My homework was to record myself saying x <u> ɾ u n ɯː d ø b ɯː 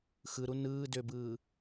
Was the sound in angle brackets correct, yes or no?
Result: no